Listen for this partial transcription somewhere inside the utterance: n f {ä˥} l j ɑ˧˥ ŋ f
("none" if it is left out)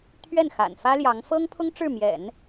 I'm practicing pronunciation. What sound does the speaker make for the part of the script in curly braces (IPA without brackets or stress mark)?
ä˥